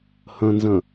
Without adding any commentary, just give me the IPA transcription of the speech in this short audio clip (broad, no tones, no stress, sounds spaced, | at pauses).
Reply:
h ə̃ n z ə̃